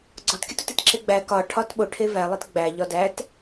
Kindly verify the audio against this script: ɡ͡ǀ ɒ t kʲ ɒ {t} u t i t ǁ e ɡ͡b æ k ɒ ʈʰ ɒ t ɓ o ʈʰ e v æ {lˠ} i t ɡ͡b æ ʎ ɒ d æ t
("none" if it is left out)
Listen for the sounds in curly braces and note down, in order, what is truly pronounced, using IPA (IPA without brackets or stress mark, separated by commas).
t, lˠ